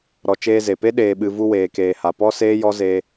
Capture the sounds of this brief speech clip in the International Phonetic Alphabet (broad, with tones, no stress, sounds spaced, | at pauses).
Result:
ɾ ɔ˨ t͡ʃ eː˧ z e˨ p e˦ ɗ eː˨ ɓ ɨ˨ v u˧ w eː˨ k eː˨ h a˨ p ɔ˦ s eː˦ j ɔ˦ z e˦